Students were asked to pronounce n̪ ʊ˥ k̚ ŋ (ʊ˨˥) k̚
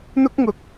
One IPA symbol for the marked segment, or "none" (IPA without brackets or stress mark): ʊ˨˥